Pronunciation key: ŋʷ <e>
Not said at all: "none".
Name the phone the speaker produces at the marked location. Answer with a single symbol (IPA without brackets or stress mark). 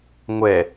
ɛ